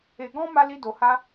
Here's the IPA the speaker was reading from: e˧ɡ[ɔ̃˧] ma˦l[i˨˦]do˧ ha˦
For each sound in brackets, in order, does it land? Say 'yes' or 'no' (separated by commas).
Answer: no, no